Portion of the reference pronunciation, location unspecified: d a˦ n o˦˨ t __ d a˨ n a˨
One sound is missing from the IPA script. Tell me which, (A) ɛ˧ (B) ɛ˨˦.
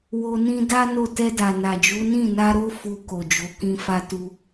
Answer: A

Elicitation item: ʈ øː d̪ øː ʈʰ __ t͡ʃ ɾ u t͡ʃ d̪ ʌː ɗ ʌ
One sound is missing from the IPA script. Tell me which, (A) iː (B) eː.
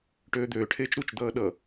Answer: B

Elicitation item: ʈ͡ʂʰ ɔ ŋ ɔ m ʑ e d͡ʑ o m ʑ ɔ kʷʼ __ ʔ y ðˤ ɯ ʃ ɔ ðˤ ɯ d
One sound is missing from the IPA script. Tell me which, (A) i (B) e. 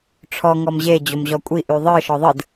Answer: A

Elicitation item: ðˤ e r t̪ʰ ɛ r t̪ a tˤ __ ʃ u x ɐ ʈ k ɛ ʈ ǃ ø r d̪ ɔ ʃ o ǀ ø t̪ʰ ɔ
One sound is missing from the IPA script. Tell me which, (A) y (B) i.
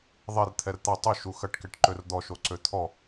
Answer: A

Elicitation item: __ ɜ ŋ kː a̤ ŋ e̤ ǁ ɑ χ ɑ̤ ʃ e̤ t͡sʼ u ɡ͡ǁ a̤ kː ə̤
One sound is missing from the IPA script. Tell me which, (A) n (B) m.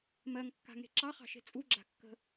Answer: B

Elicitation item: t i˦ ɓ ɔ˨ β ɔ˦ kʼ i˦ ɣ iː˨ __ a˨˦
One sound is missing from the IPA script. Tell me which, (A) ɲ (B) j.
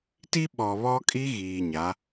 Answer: A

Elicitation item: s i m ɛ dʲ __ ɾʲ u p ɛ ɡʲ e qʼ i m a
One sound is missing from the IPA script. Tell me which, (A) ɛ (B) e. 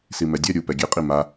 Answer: A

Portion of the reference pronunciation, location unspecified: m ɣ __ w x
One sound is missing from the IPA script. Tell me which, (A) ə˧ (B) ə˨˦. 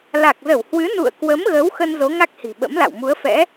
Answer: B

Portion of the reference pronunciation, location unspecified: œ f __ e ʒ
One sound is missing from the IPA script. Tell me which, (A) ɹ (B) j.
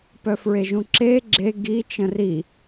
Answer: A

